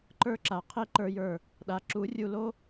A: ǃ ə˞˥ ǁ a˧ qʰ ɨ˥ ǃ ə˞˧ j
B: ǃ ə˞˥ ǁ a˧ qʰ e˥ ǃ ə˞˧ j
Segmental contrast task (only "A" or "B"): B